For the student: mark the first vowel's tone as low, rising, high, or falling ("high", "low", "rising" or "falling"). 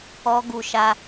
high